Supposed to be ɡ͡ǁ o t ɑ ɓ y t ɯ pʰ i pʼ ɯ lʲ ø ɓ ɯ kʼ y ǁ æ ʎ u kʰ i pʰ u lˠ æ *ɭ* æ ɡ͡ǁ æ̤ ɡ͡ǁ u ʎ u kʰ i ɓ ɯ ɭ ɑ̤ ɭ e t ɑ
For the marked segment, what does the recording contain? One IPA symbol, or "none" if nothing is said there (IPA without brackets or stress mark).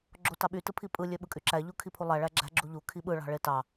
ɭ